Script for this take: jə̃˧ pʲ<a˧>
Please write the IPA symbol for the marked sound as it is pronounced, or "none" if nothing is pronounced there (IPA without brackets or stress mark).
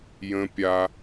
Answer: a˧